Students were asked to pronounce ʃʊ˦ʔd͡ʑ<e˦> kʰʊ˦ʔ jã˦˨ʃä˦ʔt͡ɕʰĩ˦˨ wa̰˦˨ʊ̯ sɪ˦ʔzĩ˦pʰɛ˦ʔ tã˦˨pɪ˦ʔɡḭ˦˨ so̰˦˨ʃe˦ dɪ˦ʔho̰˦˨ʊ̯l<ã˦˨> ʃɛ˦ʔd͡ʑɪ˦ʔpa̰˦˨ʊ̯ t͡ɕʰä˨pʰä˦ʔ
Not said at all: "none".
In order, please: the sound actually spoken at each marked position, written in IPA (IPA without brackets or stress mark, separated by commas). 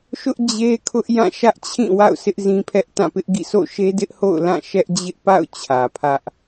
e˦, ã˦˨